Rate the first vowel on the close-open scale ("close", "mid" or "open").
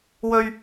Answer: mid